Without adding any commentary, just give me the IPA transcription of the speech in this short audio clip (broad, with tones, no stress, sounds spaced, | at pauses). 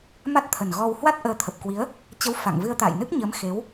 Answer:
m a˦˥ t̚ t̪ʰ ə˨˩ n ɣ ɔ˧ w h w a˦˥ t̚ ʔ əː˨˦ t̪ʰ ə˨˩ p̚ k w i˨˦ ə̯ | t͡ɕ ə˨˦ w f a̰˧˨ ŋ v ɨ˧ ə̯ t̪ a̰ː˧˨ j n ɨ˦˥ k̚ ɲ əː˨˦ m x e˨˦ w